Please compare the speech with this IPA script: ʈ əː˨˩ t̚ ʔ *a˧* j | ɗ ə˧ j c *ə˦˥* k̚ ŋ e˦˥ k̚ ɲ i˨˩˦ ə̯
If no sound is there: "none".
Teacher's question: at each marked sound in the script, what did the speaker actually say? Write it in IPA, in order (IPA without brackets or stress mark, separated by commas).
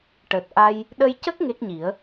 a˧, ə˦˥